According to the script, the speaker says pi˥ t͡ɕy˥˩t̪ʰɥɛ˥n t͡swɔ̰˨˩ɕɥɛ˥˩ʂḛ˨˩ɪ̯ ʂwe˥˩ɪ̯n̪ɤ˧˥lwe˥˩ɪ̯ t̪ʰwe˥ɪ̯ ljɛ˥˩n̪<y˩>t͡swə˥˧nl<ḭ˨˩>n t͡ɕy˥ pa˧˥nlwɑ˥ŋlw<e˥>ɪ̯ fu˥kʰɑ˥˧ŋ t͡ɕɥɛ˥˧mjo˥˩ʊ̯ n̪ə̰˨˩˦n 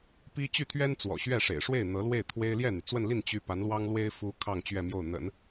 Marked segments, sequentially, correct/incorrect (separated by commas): correct, incorrect, correct